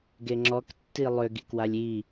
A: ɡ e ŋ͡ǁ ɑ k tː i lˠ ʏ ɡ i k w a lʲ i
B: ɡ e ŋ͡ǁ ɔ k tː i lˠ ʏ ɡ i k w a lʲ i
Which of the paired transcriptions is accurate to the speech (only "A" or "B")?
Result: B